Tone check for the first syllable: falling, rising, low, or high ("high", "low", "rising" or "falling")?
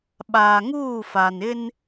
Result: low